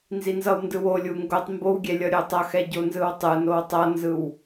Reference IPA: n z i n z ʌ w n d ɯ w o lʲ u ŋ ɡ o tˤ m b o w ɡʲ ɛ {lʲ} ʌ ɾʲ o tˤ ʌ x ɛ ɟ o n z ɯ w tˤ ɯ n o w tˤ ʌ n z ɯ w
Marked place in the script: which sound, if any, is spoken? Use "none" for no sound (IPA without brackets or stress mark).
lʲ